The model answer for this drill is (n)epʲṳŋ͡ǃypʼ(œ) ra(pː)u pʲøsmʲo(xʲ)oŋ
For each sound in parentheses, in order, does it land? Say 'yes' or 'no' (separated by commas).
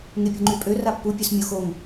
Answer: no, no, yes, no